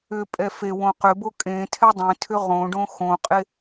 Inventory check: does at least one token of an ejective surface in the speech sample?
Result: yes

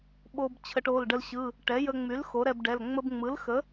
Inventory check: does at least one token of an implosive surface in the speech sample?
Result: yes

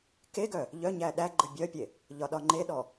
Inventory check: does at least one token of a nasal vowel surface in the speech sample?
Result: no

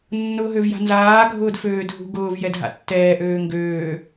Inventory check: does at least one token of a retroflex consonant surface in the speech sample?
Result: no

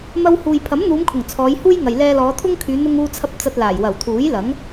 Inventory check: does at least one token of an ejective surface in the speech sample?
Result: no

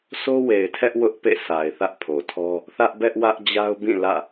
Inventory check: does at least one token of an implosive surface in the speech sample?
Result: no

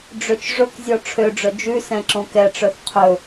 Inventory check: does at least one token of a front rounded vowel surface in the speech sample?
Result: yes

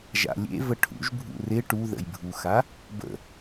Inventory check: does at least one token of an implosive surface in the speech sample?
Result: no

